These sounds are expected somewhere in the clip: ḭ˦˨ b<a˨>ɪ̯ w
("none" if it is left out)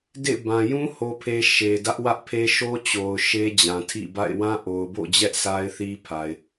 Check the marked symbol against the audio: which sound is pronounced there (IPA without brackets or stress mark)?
a̰˦˨